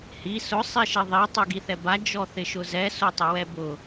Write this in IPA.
h i s ʊ sˤ i ʃ e ðˤ i tˤ u ɡ i θ ɛ b a d͡ʒ ɔ θ ɪ ʃ ʊ z ɛ s o tˤ ɪ w ɛ b ʊ

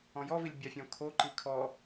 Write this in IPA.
ɔ̃ j ɔ v i lʲ bʲ a fʲ ɔ̃ kʰ o ǃ i kʰ ɔ

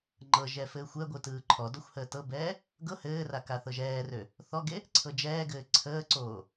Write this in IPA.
ŋ͡ǃ ɤ ʒ ɛ f ɘː xʷ ɛ ɡʷ ɯ t ɯː ǃʰ ɔ d ɔ xʷ h əː t ɤ b ɛː | ɡ ɤ h ɘː r a k a θ ɤ ʒ ɛː r ø | θ ɔ ɡ e | ǀʰ ɤ d͡ʒ ɛː ɡ ɘː ǀʰ əː ǀ oː

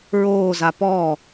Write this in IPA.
ɹ oː z a p ɔː

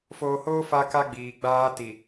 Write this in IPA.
f oː˨ h oː˦ f a˦ k a˦ ɡ͡b iː˨ ɡ͡b aː˦ t i˨

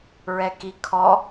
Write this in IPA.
ɹ ɛ k i kʰ ɔ

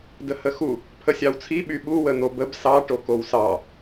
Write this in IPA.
d ə h ə x u | pʰ ə sʲ ɑ w t͡sʰ i ɓ y ɓ u w ə n̪ o b ə b s ɑ ʈ o k o w s ɑ

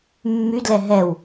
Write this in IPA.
mː y d l ɛ ɦ ɛ w

